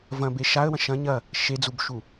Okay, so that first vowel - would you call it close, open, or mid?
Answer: open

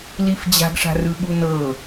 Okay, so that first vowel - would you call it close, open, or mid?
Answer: close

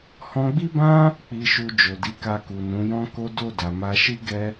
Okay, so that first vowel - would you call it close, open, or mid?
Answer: mid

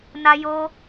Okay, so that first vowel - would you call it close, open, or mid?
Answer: open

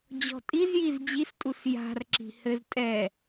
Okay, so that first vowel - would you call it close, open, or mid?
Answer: mid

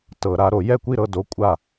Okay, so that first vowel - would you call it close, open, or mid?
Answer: mid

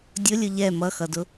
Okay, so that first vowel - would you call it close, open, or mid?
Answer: close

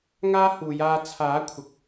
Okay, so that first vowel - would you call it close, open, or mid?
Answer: open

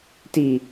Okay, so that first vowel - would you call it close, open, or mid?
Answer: close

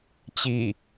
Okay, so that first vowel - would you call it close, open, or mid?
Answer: close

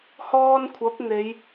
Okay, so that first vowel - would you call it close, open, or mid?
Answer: mid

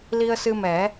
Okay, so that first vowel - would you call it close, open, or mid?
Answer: close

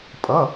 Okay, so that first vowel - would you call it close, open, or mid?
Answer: mid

